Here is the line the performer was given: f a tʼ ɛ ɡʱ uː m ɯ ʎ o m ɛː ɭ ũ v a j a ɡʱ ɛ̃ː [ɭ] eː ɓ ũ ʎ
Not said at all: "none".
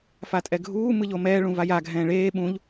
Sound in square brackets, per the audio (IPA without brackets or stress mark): ɭ